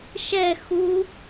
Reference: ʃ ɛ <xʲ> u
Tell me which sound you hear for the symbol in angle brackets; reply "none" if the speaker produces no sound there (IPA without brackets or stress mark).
x